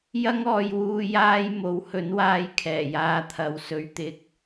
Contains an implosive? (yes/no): no